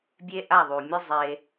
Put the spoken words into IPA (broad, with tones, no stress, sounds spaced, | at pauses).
bʲ e˦ ʔ a˦˨ ðˤ u˨ mʲ ɯ˦ zˤ e˧